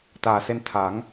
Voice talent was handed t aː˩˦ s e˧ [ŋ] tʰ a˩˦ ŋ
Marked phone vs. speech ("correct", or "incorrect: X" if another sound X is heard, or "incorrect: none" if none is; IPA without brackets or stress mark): incorrect: n